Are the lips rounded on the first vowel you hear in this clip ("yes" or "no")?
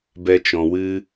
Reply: no